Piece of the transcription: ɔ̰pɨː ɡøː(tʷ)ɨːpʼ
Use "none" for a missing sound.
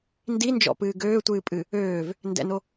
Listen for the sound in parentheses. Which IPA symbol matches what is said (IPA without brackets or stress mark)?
tʷ